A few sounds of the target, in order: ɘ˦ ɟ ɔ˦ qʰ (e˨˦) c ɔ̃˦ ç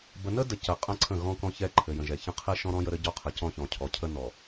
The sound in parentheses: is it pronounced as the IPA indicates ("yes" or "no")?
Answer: no